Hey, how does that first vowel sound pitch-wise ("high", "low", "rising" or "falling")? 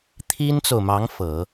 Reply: high